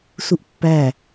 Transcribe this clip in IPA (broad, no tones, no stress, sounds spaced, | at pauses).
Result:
s u ʔ pː æ